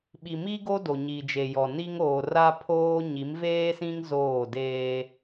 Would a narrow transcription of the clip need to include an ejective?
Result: no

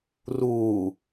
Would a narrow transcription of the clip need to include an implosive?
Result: no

